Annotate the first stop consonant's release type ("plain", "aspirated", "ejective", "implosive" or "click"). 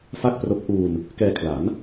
plain